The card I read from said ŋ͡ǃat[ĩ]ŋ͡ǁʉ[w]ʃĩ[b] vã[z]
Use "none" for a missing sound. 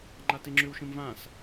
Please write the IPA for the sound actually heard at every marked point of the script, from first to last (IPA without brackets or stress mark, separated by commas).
i, w, m, s